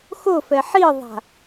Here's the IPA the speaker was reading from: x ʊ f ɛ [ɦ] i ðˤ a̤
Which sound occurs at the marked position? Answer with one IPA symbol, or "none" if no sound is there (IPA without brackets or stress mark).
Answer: ħ